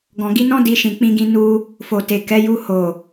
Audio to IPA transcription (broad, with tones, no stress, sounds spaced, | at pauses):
ɡ ɔ̃˨ ɡ i˧ n ɔ̃˦ d i˧ ʃ ĩ˨ k͡p ĩ˧ ɡ ĩ˧ n u˦ | f o˨ t e˨ k ɛ˨˦ j u˧ h o˨